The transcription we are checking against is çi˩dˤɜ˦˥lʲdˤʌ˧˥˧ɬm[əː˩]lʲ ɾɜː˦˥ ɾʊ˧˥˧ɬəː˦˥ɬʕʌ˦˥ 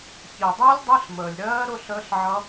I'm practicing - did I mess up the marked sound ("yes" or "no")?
no